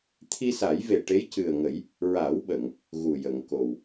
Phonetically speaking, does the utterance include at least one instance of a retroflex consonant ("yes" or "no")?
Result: yes